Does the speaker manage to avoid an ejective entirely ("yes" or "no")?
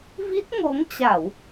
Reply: yes